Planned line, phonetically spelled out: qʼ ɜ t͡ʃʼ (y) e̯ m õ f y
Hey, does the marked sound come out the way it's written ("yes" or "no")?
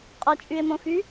yes